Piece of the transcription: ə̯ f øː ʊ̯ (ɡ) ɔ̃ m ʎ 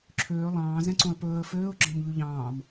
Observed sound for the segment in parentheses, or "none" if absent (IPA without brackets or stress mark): ɡ͡ǁ